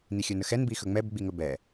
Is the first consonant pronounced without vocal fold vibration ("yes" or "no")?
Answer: no